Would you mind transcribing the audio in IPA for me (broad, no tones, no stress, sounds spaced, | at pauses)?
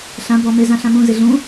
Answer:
ɬ ã b ɔ m e z ã ɬ ã m ũ z ɪ ɮ ũ